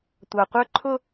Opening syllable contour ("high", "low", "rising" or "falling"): low